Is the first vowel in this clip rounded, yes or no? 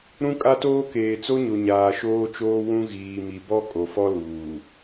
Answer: yes